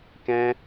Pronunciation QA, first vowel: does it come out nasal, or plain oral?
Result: nasal